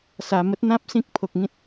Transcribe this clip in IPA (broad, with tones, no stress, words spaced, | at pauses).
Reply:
sa˨˩ mə˦t̚n̪ã˦p̚ sĩ˦k̚pʰo˨k̚ŋĩ˦t̚